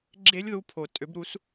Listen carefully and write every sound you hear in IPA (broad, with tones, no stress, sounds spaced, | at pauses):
ɡ͡ǁ e˦˥ lʲ ð u˧ pʰ o˩ tʼ ø˩˥ b ɾ u˩˥ s